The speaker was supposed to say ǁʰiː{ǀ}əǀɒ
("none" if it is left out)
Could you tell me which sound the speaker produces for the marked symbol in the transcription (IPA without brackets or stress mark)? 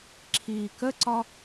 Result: k